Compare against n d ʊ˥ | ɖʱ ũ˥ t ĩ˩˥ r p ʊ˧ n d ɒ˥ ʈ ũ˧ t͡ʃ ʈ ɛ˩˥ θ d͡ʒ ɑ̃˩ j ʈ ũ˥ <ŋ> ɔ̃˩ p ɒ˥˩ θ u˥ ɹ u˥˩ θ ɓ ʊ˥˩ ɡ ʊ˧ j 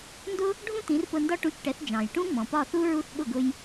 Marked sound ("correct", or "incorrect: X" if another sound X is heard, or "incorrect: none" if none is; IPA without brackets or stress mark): incorrect: ŋ͡m